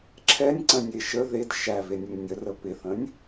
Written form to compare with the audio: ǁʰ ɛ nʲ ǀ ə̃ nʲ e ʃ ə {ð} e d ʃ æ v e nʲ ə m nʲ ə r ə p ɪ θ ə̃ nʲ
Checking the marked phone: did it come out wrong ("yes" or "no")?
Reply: no